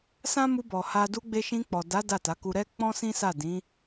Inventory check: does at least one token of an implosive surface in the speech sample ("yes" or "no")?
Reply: no